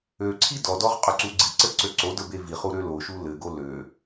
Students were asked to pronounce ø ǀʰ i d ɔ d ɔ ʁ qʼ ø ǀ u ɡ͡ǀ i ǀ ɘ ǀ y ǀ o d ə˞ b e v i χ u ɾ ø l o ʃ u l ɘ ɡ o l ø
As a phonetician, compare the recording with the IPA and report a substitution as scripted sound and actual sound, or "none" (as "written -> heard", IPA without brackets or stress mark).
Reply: y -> ø